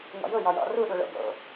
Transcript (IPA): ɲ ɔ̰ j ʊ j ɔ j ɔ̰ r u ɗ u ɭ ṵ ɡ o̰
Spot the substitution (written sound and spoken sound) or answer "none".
ṵ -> o̰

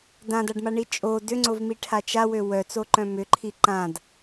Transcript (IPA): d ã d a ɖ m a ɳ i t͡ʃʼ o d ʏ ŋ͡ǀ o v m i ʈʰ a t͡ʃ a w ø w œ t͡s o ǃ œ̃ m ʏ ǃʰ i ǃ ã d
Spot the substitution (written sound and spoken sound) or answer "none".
none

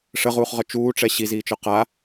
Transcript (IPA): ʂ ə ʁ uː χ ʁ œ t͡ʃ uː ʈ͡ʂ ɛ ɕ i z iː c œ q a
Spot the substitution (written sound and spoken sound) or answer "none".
c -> t͡ʃ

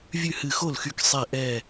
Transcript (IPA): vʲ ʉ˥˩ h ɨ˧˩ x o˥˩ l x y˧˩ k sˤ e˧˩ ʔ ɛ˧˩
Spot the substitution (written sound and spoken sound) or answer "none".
none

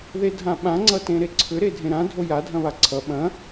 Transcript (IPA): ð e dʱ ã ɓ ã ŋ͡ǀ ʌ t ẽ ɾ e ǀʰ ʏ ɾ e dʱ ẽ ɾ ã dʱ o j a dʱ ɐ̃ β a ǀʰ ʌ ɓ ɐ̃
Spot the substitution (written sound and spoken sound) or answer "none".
none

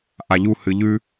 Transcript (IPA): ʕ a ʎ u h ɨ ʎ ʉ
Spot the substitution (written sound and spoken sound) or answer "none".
ʕ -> ʔ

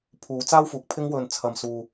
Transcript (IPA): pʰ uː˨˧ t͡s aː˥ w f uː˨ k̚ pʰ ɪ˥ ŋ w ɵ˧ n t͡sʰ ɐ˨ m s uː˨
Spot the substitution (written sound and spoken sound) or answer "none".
none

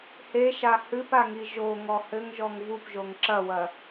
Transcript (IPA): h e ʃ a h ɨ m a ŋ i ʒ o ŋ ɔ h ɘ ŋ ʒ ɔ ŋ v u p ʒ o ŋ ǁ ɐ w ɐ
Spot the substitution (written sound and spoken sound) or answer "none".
m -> p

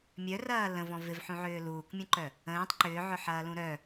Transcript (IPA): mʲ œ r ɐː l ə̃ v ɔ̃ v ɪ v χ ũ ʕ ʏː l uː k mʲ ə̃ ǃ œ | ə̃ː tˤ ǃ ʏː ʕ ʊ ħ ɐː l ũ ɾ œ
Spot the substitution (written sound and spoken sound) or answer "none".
χ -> ħ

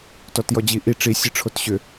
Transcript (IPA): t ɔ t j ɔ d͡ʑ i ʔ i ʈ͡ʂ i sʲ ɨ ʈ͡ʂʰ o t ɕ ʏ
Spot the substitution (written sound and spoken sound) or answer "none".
none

